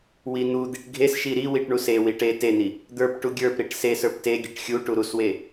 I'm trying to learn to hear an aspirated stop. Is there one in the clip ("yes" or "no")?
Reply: no